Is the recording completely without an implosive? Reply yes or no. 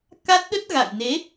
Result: no